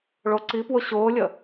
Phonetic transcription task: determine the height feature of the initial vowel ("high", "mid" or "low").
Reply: mid